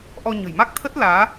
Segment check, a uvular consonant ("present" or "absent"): absent